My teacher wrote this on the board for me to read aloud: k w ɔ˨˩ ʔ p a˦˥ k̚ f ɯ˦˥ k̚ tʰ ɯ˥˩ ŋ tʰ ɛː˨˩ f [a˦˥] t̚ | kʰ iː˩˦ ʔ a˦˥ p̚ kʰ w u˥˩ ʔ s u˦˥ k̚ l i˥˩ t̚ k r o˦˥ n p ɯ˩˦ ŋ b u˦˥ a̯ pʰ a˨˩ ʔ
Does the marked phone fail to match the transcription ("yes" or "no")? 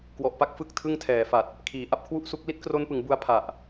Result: yes